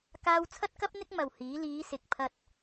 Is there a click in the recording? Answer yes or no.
no